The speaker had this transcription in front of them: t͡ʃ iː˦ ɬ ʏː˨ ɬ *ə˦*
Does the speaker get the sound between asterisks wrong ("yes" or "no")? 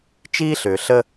no